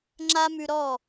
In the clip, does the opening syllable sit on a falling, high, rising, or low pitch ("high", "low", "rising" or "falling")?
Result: high